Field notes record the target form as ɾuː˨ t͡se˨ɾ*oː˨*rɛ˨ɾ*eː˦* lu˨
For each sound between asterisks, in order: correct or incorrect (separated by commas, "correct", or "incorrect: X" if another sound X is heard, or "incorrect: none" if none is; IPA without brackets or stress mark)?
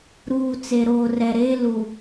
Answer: correct, correct